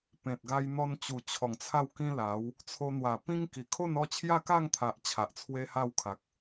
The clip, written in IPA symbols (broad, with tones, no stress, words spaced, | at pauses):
pẽ˨t̚ɡa˧jn̪ɔ˧nt͡ɕu˨˩ t͡ɕʰɔ˨˩ŋt͡sʰa˥˧w kĩ˧ la˨˦w | t͡sʰo˧n̪wa˨˩pĩ˦ŋki˨˩ kʰo˥˧nɔ˥˧ t͡ɕʰja˥˧ka˥˧ŋt̪ʰa˨ʔ t͡ɕʰa˨ʔt͡sʰwe˦ha˥˧wkʰa˨k̚